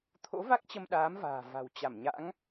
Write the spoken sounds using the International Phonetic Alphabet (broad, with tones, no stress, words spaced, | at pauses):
t̪ʰo̰˧˥va˦˥k̚ t͡ɕə˧mɗaː˨˦mva̤ː˨˩ va̤˨˩wt͡ɕa˧˩mɲa̰˧˥ŋ